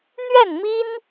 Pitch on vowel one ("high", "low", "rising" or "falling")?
falling